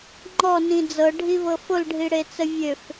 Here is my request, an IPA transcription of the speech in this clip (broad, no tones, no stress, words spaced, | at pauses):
ŋ͡ǃɔnĩ d͡zɤɖʱivɤ folɖʱiɽet͡sə vʲøf